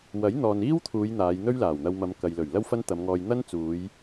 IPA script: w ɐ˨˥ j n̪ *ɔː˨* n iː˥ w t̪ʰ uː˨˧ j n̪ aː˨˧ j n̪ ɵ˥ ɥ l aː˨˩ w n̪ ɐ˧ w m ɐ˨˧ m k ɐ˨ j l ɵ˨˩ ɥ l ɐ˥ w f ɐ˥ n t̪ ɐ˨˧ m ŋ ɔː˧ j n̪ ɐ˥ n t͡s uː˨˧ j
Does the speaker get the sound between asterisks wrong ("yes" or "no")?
no